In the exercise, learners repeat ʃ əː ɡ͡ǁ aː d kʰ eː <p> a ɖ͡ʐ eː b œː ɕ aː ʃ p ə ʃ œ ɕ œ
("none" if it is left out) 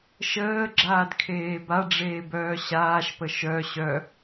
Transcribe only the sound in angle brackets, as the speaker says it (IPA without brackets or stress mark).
b